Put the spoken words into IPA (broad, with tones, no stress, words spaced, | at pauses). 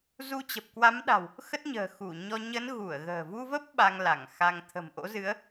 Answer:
zu˧t͡ɕə˨˩p̚kwa˨˦m ɗa̤˨˩w | xə˦˥t̚ ɲə̤ː˨˩xu˧˩ɲɔ˧ ɲə˨˦n ɣu˧˩ə̯ɣə̤ː˨˩ vu˧və˦˥p̚ ɓa˧ŋla˧˩ŋxa˧ŋ t̪ʰə̤˨˩mʔo̰˧˥zɨ˨˦ə̯